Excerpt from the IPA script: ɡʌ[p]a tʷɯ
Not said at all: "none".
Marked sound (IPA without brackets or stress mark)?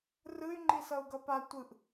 p